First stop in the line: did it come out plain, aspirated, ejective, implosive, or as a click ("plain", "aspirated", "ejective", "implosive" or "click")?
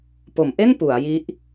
plain